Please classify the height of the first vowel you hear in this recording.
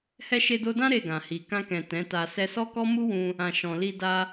mid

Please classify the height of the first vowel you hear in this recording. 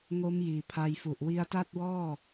mid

